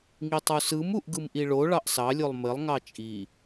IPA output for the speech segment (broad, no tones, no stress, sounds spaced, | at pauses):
ŋ i tˤ u s ɯ m u ʔ ɡ ɯ m ʔ i ɭ o ɭ ɑ ʔ s ɑ lʲ o lˠ m ɘ lˠ ŋ ɑ t͡ʃʼ i